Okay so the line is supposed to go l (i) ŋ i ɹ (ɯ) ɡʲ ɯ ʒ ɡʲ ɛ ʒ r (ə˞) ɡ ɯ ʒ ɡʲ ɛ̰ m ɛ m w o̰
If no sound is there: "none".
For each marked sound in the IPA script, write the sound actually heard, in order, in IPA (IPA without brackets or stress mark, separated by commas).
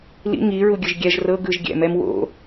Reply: ḭ, u, ɤ